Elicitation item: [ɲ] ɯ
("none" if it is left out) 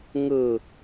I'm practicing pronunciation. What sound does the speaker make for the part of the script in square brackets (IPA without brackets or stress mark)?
ŋ